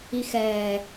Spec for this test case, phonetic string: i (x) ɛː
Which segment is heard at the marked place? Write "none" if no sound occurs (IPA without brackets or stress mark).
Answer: x